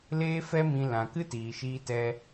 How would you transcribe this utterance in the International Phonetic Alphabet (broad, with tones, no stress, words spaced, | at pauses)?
leː˦fɛ˦mĩ˧ lã˨kɨ˦tiː˨ʃiː˧ tɛ˧